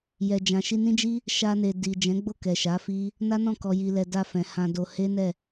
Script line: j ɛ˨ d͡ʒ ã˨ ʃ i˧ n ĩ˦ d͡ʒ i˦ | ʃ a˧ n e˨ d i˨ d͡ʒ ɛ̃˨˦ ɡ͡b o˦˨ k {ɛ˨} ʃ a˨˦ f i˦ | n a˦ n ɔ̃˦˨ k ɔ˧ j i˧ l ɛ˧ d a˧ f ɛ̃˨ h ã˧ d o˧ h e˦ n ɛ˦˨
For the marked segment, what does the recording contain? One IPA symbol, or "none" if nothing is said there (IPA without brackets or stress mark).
ɛ˨